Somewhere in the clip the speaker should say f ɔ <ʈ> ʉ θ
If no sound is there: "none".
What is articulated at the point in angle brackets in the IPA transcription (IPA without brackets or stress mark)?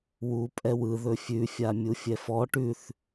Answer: ʈ